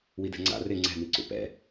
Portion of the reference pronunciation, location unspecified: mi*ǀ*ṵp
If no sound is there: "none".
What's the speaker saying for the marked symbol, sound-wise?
ǀ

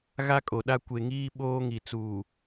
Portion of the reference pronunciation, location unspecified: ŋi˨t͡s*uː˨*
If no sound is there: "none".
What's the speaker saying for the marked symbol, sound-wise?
uː˨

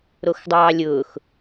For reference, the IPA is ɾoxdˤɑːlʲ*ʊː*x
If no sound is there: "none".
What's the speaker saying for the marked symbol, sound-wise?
ʊː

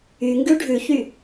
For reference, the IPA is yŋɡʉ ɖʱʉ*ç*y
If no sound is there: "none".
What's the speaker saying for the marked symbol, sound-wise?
ç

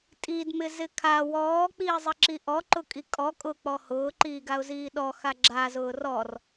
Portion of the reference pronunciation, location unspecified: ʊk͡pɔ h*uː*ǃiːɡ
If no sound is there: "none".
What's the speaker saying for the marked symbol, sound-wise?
ʊː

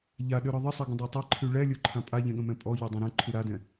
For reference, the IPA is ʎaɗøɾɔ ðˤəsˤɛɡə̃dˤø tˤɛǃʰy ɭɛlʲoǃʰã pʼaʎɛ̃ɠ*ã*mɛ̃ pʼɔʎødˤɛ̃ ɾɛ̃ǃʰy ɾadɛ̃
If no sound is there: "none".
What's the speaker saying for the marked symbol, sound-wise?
ə̃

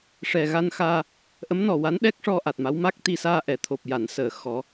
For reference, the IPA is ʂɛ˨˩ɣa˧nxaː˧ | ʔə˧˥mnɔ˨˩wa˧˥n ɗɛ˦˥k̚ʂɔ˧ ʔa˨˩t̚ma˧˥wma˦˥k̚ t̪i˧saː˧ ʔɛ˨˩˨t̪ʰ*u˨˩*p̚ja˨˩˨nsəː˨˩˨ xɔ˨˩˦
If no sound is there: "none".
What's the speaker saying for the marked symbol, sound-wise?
o˨˩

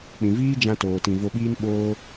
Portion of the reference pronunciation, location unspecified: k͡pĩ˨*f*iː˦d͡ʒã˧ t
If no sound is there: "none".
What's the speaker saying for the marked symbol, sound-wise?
v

